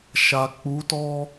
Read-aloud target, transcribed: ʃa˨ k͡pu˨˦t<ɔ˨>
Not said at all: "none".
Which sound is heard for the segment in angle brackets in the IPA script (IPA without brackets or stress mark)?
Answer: ɔ˦